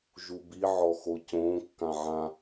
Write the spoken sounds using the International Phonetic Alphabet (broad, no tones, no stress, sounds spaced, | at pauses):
ʒ u b i ʕ ɔ x o c õ kː ã ʕ ã